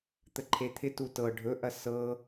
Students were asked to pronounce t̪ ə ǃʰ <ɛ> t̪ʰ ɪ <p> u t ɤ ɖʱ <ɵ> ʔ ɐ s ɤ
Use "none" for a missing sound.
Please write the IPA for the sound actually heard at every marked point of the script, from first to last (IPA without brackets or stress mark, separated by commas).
e, t, ɵ